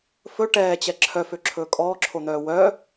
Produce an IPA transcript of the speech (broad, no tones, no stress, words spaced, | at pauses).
fɵ ʈɛːt͡ɕɛ ǁʰœføǁʰɵː kʼɔːǁʰon̪œː wœ